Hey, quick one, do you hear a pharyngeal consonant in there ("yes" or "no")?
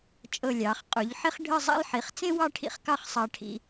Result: yes